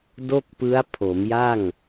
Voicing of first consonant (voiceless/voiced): voiced